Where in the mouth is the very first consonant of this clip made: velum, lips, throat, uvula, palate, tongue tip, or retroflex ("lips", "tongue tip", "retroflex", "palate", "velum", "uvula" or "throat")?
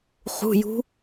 uvula